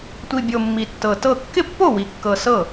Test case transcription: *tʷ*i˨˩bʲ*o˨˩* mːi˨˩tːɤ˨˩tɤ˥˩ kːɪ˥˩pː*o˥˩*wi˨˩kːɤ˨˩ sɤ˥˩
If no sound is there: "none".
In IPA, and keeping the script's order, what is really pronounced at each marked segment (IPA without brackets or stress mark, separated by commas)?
tʷ, o˨˩, o˥˩